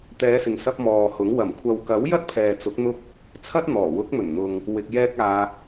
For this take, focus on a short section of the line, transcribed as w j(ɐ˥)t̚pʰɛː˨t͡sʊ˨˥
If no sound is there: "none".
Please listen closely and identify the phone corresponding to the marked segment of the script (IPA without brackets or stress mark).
ɐ˥